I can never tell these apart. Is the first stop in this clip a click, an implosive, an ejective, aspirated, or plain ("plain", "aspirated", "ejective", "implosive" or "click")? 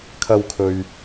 aspirated